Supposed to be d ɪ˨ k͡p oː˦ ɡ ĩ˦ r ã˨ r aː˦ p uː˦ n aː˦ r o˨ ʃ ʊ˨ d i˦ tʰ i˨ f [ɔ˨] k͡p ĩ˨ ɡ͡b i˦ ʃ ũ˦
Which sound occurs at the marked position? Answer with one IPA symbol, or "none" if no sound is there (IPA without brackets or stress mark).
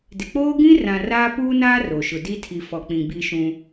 ɔ˨